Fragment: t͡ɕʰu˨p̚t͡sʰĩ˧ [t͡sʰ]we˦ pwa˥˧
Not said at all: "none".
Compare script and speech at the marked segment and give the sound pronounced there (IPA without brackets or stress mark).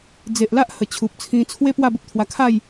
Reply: t͡sʰ